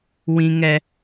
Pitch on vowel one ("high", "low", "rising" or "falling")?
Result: high